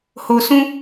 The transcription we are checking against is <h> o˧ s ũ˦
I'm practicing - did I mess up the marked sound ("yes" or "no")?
no